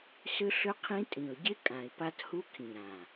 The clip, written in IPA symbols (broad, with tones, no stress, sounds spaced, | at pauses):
s ʏ˦ ɬ ʏ˦ qʰ ĩ˦ tʼ ĩ˨ ʊ̯ ɟ ɪ˦ kʼ ã˨ ɪ̯ p a˦ t h u˦ kʰ ĩ˨ ɾ ã˨